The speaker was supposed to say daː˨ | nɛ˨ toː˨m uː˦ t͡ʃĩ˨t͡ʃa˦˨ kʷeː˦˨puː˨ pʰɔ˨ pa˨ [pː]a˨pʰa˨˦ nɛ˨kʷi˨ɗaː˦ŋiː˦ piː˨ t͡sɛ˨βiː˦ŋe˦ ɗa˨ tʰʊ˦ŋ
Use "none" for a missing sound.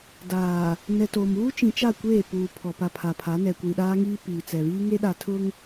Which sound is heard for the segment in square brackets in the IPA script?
pʰ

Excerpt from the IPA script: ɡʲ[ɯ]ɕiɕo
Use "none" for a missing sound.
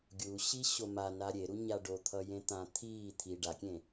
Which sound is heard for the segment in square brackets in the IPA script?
u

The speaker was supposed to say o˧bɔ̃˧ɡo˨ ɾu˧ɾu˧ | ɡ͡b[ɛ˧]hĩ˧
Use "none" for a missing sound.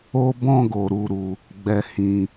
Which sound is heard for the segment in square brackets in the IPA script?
ɛ˧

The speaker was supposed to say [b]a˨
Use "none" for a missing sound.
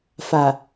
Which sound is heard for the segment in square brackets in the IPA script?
f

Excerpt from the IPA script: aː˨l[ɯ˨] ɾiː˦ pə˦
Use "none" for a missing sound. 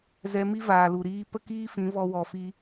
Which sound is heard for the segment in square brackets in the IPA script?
u˨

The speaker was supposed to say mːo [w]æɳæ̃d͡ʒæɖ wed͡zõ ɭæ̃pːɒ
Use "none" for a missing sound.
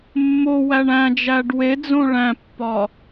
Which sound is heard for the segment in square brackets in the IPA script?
w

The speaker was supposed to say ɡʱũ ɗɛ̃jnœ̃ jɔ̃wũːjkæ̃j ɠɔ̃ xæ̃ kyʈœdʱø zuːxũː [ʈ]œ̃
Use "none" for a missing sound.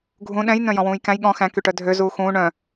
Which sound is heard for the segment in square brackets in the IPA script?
ɳ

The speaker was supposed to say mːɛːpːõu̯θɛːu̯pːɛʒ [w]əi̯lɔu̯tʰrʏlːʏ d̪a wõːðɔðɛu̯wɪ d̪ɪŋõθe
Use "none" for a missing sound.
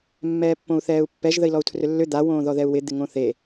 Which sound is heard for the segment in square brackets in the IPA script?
ð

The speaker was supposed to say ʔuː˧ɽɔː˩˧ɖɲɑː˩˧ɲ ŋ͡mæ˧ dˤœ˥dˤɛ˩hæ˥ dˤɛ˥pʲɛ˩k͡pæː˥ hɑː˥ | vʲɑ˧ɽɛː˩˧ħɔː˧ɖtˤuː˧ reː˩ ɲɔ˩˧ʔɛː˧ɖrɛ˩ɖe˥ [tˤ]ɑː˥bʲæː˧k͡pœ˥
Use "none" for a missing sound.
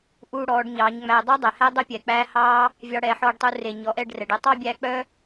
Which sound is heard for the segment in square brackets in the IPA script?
tˤ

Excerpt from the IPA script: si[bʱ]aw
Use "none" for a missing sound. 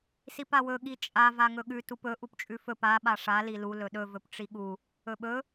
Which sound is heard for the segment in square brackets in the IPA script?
p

